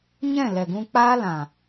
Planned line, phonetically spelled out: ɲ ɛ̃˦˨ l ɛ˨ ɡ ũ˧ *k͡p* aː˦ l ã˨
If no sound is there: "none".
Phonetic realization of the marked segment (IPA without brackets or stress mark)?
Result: k͡p